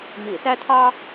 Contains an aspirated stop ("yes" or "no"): yes